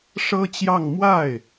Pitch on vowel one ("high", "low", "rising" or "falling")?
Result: high